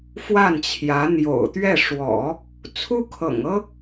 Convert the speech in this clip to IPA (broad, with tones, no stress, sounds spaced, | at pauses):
f w a˥˩ n t͡ɕʰ j ä˧˥ n̪ j o̰˨˩ ʊ̯ t̪ ɥ ɛ˥˩ ʂ w ɔ̰˨˩˦ | t͡sʰ u˥ kʰ ɤ̰˨˩ ŋ ɤ˥